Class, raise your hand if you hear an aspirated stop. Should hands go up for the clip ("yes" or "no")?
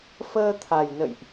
yes